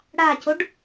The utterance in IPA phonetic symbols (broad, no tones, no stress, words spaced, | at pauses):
ɽacoɖ